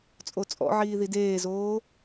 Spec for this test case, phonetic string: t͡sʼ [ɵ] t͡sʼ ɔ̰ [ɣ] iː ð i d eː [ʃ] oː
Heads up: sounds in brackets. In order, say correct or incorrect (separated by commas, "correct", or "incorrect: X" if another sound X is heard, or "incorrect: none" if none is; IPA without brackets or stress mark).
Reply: incorrect: o, incorrect: ʕ, incorrect: z